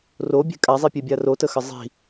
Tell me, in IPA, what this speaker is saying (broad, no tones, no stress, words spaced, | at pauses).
robʲe̤ kʼazˤipʲebʲa rotəxə zˤi̤